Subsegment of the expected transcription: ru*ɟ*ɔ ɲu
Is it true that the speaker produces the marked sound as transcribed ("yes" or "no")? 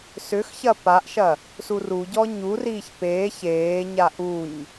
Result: yes